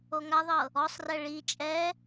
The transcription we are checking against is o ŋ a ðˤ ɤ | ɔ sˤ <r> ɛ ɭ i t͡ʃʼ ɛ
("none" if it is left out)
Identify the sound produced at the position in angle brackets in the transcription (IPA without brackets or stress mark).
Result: r